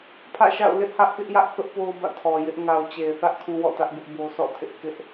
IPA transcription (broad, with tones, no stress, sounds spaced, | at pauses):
pʰ ä̰˦˨ ʃ a̰˦˨ ʊ̯ l ɪ˦ ʔ h ä˦ ʔ k ɪ˦ ʔ j ä˦ ʔ θ ʊ˦ ʔ p o˦ ʊ̯ b ä̰˦˨ tʰ ɔ˨ j ɪ˦ ʔ ŋ a˨ ʊ̯ t͡ɕ e˨ ɪ̯ θ ä˦ ʔ kʰ ũ˦ w ɔ̰˦˨ t ä˦ ʔ b ɪ˦ ʔ b o˦ s ɔ̰˦˨ tʰ ɪ˦ ʔ k ɪ˦ ʔ